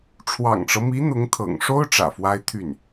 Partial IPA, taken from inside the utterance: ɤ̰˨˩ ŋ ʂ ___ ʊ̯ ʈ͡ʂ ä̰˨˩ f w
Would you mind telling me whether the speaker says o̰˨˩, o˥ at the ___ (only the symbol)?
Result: o˥